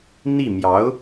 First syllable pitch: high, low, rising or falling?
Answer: falling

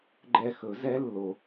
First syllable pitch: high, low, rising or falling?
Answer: high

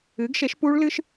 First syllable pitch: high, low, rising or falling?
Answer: rising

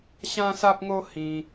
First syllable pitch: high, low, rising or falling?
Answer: high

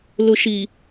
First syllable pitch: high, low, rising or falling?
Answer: low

